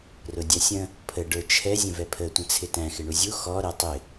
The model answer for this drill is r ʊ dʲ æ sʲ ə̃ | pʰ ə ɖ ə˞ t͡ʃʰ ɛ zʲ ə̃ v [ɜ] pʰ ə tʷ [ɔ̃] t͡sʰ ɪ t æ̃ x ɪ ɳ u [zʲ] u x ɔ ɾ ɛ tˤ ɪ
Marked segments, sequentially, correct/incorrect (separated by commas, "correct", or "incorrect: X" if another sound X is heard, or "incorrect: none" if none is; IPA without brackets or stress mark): incorrect: ɛ, incorrect: ə̃, correct